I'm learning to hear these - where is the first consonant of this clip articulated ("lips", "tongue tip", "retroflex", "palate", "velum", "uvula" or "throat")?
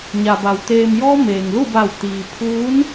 palate